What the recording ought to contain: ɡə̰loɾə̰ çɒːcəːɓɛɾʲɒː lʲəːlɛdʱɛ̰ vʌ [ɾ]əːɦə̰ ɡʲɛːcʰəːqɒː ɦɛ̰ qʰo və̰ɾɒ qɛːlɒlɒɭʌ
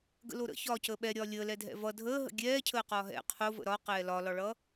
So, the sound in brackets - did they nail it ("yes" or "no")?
no